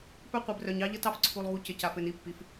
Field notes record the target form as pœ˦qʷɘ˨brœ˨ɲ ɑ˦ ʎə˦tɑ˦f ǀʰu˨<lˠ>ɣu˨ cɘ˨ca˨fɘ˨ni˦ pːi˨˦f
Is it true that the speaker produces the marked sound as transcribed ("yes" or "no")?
yes